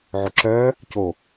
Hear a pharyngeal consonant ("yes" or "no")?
yes